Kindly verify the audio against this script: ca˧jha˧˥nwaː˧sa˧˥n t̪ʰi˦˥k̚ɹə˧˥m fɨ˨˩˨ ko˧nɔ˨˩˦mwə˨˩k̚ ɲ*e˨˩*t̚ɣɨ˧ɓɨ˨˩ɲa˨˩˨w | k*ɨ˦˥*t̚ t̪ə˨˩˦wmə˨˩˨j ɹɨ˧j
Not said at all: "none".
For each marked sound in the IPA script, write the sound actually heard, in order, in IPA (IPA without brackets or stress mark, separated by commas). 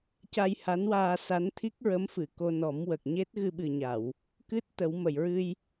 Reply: e˦˥, ɨ˦˥